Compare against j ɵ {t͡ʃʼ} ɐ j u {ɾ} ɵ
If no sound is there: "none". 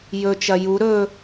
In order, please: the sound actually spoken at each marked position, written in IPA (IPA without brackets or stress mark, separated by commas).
t͡ʃ, ɾ